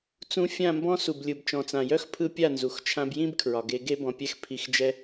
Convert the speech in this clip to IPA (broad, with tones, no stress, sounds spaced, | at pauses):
t͡s ũ˧ fʲ ã˦˨ m b ɔ̃˦ s u˨ b lʲ ɯ˨ b t͡ʃ ɔ̃˨ t͡s ã˨ j œ˦ x pʰ ɯ˧ pʲ a˦˨ n z u˨ x t͡ʃʰ ã˧ b j ĩ˦ b kʰ ɹ ɒ˨ ɡ e˧ ɡ e˦ b ɔ̃˨ pʲ ɛ˧ x pʰ i˨ x d͡ʒ ɛ˧